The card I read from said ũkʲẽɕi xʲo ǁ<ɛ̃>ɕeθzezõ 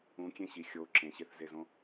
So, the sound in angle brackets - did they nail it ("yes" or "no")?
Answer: no